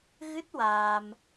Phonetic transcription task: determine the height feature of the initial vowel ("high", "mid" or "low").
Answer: high